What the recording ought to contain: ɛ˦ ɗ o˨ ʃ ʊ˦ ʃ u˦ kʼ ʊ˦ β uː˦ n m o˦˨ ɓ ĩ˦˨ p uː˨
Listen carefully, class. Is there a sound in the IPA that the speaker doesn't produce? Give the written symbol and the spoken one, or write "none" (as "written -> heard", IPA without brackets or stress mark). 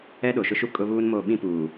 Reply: none